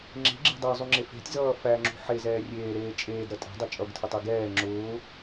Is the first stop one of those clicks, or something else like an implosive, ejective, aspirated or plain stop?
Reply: click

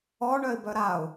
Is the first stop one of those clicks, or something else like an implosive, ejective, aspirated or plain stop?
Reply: plain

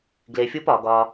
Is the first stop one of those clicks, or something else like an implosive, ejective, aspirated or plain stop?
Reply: plain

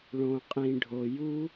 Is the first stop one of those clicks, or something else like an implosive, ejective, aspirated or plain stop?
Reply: ejective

